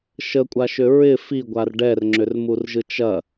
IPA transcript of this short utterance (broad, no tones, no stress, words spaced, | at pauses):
ʃəkʷʼaʃʏ ɹɪ fiɡʷar ɖɛrŋ͡ǁʏrmurʒɯ t͡ʃɐ